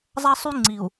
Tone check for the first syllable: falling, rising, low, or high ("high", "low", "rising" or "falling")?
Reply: high